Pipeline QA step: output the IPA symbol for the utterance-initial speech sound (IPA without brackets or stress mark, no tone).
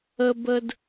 ə